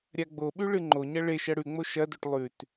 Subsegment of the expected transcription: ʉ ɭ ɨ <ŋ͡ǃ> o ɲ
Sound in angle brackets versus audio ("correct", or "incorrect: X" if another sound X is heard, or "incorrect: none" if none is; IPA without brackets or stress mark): correct